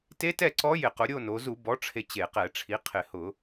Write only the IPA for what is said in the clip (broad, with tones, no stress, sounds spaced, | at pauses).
t e˧˥ t ɛ˥˨ ǀ ɔ˧˥ j ɪ˧˩˧ q ʊ˩˧ ɾʲ o˥˨ n o˩˧ z u˧˩˧ b ɔ˩˥ ʈ͡ʂʰ e˧ t͡ɕ e˧˩˧ q ɛ˧˩˧ ʈ͡ʂʰ i˩˥ qʰ ɪ˧˩˧ h ʊ˧˩˧